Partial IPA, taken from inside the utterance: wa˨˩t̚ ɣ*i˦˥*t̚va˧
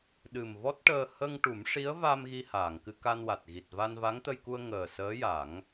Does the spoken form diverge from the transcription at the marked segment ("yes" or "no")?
yes